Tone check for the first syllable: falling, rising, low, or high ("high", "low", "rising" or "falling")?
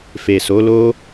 low